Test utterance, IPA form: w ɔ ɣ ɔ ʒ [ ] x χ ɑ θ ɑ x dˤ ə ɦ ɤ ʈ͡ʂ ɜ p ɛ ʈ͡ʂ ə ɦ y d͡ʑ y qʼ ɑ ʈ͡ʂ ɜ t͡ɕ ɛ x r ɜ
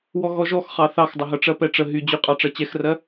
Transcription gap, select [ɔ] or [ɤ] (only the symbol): ɔ